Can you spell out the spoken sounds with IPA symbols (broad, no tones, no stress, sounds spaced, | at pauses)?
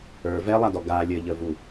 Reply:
ə˞ v ɛ lˠ a d ɔ ɡ a lʲ ə ʎ ə v u